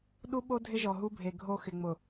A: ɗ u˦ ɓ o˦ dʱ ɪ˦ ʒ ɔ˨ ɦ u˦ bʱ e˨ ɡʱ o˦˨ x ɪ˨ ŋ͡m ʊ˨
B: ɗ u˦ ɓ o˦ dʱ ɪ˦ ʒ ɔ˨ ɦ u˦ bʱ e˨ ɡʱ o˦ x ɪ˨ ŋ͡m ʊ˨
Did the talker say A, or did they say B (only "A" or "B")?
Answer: B